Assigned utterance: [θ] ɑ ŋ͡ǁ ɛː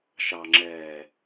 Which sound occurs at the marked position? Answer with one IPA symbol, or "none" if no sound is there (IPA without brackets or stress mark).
ʃ